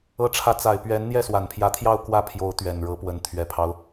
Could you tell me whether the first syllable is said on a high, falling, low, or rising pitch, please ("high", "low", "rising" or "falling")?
rising